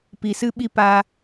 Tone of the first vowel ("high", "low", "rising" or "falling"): low